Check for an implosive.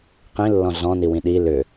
present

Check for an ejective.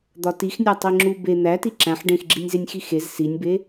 absent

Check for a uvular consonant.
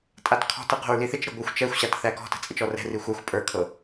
present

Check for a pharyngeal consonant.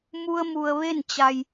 absent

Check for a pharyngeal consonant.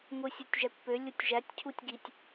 absent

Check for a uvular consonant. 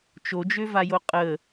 present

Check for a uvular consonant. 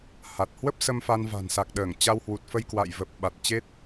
absent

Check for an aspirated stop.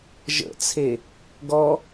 present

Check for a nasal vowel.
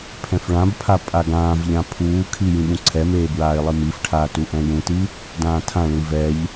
present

